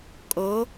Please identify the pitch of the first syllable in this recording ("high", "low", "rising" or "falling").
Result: rising